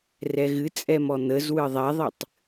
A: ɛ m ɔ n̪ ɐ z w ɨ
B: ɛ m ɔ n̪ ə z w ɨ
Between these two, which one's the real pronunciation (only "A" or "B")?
B